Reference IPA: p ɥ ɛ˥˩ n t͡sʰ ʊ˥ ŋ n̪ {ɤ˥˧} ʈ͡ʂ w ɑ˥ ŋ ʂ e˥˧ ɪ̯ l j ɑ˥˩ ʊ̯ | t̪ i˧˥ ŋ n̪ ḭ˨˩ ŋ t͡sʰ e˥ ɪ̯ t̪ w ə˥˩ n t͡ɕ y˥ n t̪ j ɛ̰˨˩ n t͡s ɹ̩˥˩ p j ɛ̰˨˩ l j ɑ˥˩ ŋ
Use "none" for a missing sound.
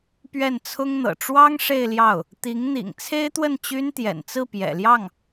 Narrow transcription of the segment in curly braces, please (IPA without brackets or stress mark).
ɤ̰˨˩